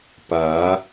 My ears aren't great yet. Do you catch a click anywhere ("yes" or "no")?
no